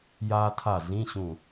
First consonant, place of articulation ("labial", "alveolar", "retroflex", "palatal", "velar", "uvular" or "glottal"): palatal